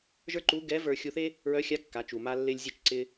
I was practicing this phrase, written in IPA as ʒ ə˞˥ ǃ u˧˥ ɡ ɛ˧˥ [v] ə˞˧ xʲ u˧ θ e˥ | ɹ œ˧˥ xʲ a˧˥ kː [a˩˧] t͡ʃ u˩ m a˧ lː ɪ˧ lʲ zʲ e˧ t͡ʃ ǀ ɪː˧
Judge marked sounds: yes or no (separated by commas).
yes, yes